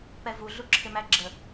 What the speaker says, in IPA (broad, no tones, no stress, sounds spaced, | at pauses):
p ɛ v u ɮ u ǁʰ ɪ m æ ɡ͡ǁ ə